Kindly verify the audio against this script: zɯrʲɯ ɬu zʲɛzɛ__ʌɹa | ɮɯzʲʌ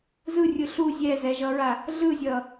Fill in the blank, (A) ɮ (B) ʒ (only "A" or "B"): B